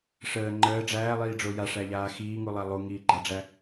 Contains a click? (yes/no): yes